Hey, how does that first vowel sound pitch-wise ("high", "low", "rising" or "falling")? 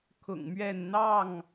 low